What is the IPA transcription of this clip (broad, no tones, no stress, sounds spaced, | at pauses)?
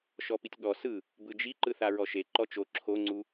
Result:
ʃ ɔ p i tʲ ɠ ɔ s ɯ | b ɯ d͡ʒ i ǃ ɯ θ a ɹ ɔ ʃ e ǃ ɔ t͡ʃ o ǁʰ o ŋ͡ǀ u